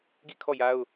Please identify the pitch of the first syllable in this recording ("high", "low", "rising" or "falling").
falling